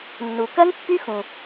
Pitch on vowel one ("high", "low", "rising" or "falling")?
low